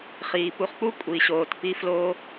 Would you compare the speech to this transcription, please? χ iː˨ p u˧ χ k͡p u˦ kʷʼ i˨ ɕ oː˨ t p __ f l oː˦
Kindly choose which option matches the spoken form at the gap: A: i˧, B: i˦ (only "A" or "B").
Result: A